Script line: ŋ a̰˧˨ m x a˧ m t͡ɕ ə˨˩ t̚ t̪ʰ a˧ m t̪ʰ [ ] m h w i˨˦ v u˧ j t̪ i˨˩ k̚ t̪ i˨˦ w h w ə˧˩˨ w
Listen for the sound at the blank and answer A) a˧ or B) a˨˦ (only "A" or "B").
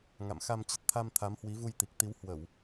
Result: B